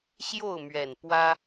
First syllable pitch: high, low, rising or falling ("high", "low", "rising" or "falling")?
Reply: falling